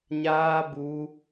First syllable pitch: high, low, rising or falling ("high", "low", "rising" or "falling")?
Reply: high